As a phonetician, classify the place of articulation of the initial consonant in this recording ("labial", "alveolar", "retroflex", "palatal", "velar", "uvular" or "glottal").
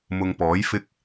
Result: labial